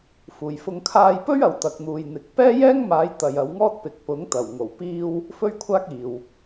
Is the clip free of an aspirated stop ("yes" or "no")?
no